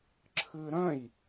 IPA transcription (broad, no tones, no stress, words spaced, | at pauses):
ǁʰɨɾœ̃j